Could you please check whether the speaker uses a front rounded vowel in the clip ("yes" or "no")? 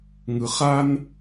no